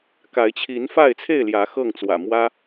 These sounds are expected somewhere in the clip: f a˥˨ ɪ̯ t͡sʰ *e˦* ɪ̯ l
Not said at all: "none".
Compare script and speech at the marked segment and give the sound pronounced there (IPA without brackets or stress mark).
e˥˨